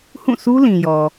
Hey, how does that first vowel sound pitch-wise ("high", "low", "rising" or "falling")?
falling